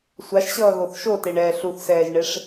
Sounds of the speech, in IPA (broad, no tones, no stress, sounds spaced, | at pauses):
sʷ a ʃ ɕ ʌː ɣ o θ ʃ o t e ɳ ɛː ɬ u θ s ɛː ʒ ɳ e ʂ